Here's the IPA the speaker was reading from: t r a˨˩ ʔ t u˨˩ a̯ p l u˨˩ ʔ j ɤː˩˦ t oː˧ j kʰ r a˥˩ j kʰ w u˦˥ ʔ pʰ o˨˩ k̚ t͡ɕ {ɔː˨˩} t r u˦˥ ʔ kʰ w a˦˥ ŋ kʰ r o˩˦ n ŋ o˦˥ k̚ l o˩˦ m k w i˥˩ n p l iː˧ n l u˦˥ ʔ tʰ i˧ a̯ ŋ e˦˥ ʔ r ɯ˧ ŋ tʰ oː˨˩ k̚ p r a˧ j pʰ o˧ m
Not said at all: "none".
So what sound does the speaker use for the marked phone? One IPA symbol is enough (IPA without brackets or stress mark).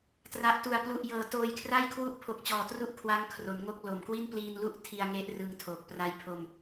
ɔː˨˩